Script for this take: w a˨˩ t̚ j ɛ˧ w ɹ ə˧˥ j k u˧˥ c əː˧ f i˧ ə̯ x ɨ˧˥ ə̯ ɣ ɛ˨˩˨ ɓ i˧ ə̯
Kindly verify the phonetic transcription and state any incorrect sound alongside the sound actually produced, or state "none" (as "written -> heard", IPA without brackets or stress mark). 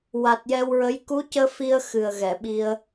ɨ˧˥ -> ɨ˨˩